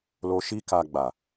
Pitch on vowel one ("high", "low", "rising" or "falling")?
high